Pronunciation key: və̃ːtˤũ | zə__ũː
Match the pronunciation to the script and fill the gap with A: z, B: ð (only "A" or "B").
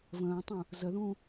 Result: B